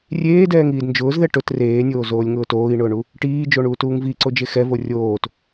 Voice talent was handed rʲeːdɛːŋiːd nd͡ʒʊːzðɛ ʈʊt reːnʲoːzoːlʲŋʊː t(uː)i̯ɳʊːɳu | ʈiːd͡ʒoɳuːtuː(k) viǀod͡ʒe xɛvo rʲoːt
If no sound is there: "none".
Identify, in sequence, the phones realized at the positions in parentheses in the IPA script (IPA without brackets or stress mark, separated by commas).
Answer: oː, ŋ